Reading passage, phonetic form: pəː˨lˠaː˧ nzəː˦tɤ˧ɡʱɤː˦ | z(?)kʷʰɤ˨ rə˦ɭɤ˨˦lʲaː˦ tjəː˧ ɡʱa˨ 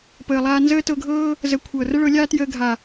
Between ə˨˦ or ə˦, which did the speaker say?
ə˨˦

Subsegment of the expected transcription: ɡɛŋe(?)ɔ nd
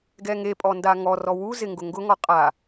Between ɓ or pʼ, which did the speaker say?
pʼ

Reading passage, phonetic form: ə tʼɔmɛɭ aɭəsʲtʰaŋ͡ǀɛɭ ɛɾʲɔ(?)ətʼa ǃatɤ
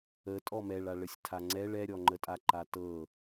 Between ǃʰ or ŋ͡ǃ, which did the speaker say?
ŋ͡ǃ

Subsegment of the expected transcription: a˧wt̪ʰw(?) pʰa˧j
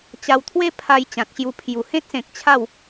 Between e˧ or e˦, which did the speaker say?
e˦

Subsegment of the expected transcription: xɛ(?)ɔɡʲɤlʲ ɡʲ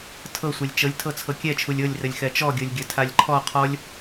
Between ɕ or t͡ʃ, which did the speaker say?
t͡ʃ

